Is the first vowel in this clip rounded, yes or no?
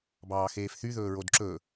no